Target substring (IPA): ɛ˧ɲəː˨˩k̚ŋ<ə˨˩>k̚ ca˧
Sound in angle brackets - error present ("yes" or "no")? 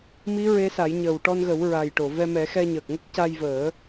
yes